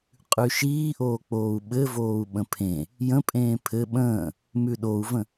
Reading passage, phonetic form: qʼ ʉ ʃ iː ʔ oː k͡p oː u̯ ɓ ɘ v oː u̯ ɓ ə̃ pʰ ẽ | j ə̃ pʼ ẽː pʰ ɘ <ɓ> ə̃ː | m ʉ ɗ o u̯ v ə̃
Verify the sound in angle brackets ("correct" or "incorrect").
correct